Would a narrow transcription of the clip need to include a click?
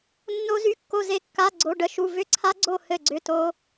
yes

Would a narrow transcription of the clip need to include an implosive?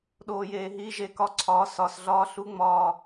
yes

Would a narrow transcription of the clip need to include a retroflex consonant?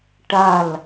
yes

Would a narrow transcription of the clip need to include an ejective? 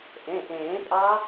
yes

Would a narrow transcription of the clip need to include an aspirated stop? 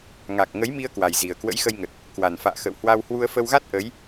no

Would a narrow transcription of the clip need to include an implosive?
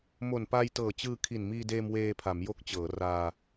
no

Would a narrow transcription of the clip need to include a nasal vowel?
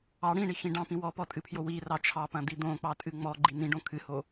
yes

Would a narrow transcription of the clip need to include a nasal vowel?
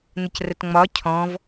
yes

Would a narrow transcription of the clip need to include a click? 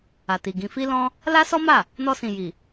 no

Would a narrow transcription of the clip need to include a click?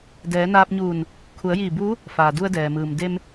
no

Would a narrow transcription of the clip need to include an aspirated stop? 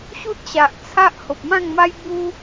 yes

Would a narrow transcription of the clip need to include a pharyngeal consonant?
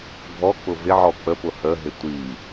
yes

